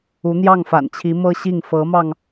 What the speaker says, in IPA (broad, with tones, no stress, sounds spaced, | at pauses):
u˧˥ n̪ j ɑ˥˩ ŋ f a̰˨˩ n t͡ɕʰ i˧˥ m ɤ˥ ɕ i˥˩ ŋ f ɤ˧˥ m ɑ˧ ŋ